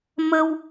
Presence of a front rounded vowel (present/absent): absent